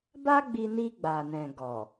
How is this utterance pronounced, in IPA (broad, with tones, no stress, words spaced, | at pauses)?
ba˦ɡ͡bi˧ni˧ ɡ͡ba˨nɛ̃˨ ɡɔ˨